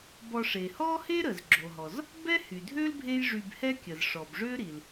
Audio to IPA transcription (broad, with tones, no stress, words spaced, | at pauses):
bɔ˧ʂe˩ hɔ˥he˥ ɾə˩zɡ͡ǁo˩ɦɔ˩z | bɛ˥hy˩dʱø˥l bʱe˥j ʐy˧bhɛ˥kʲə˩zʂɔ˩b ʐø˥ɾi˩l